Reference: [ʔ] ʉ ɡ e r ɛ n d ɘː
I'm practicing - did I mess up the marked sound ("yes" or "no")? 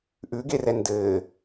no